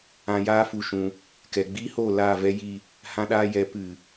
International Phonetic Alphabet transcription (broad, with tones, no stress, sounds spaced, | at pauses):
ã˧ j aː˦ f u˦ ʃ ũ˧ | k ɛ˨ ɡ͡b iː˦ h oː˦˨ l aː˦˨ v ɛ˦ j i˦˨ | h ã˧ ɗ aː˧ j ɛ˨˦ p ɨ˨